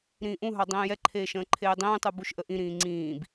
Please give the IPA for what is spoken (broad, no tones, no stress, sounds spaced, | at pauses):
ɾ ĩː ʔ ũ ɦ ɑ dˤ ĩː j ɛ ǃʰ eː ʃ ə̃ː ǃʰ eː dˤ ĩː tˤ u b u ʃ ʔ ə ʔ ĩ ɾ ĩː ŋ͡ǀ ĩː b